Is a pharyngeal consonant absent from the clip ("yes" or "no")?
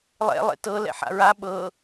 no